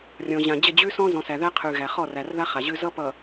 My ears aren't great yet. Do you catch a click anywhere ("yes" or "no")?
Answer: no